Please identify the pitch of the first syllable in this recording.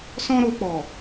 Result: high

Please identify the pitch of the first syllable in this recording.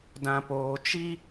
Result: low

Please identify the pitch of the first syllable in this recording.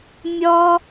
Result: high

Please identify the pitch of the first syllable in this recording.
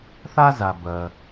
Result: high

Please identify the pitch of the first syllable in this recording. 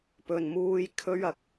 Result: low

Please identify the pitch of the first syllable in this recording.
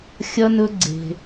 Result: high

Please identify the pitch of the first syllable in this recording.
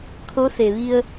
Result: rising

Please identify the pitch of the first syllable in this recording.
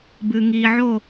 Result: low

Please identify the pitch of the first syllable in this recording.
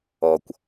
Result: low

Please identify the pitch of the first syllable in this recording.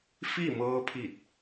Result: falling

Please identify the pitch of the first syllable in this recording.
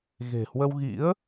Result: low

